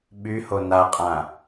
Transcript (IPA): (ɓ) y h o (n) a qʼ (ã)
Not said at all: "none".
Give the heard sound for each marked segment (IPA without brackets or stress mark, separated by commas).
ɓ, n, ã